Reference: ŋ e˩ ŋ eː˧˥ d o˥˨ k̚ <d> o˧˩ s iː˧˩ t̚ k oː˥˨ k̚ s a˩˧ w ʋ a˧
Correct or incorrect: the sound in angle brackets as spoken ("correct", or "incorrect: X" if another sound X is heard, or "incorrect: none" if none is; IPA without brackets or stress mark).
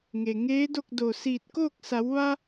correct